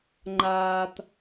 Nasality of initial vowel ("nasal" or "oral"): oral